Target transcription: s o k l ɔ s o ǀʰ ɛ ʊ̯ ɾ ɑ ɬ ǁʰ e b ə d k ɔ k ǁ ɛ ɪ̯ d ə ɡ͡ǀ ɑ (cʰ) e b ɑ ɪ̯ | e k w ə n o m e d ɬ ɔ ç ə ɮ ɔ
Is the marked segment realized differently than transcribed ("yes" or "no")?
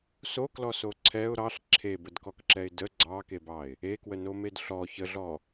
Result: yes